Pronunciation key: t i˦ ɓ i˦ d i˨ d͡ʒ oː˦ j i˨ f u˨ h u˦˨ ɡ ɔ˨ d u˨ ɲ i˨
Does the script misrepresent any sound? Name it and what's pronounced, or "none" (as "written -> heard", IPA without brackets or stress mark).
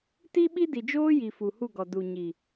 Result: none